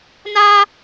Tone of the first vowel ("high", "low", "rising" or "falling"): high